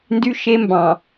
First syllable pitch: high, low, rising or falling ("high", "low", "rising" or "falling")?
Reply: high